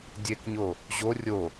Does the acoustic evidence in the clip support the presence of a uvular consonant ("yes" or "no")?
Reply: no